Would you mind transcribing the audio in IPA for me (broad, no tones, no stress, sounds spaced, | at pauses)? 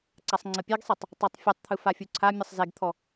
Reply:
ǀ a sˤ ŋ͡ǀ ə pʲ e ɡ sˤ e tˤ | tˤ a tˤ fʲ u tˤ t̪ʰ ɯ f a fʲ u ǀʰ a mʲ ʌ sˤ z e ɡ t̪ʰ ɔ